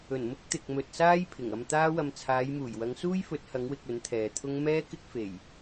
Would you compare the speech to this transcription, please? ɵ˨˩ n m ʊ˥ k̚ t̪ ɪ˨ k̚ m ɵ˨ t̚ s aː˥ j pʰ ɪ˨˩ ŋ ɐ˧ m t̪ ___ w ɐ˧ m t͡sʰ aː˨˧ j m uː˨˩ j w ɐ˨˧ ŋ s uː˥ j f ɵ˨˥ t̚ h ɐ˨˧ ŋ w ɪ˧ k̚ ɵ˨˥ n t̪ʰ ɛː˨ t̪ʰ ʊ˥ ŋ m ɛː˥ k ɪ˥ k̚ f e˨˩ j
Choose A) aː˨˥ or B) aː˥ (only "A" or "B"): B